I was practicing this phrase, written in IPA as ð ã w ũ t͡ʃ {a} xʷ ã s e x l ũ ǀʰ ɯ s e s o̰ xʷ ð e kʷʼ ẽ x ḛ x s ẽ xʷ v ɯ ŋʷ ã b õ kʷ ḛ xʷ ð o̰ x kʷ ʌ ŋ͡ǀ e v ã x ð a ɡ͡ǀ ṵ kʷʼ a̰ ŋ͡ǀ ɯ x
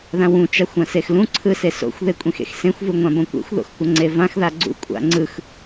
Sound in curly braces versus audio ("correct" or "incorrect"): correct